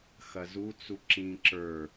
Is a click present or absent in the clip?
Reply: present